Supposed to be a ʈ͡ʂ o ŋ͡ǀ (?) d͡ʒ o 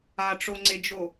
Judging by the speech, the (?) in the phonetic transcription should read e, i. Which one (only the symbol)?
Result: e